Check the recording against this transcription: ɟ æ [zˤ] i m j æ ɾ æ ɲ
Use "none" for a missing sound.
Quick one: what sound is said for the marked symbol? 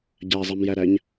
zˤ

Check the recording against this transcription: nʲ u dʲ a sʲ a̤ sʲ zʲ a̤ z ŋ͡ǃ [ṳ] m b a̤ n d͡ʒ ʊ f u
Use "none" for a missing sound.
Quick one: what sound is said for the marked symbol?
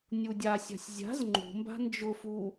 ṳ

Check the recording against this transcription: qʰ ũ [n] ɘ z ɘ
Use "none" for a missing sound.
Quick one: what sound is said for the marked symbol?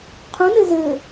n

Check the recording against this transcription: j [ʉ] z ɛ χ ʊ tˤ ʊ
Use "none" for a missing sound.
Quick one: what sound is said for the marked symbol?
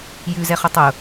ʉ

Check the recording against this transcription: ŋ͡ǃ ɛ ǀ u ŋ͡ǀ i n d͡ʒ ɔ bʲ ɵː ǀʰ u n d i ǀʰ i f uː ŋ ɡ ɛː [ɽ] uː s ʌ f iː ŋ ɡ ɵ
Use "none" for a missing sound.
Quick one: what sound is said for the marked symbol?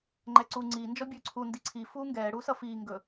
ɽ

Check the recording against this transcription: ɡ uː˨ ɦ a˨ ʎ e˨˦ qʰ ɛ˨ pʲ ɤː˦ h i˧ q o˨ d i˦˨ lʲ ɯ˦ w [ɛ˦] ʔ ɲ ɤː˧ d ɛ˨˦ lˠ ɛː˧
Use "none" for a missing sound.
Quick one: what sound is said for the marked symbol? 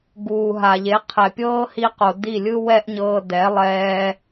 ɛ˦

